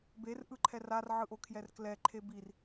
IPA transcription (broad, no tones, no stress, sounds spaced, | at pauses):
b e r ʔ ɯ ǃʰ ɛ r a r ʕ ɯ ʔ o kʰ j ɛ r k l ɛ ǃʰ e b i r